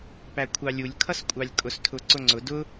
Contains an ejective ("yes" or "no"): yes